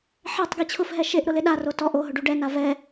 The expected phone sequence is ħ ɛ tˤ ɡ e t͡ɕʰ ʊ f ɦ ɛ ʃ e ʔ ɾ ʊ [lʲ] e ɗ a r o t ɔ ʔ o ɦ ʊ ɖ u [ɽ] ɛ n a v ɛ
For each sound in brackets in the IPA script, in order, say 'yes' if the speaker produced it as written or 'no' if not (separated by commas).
no, no